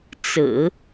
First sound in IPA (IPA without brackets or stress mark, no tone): t͡s